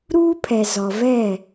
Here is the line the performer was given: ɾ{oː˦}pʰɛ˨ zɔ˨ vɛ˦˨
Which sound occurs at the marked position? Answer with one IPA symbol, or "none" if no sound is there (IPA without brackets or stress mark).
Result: uː˦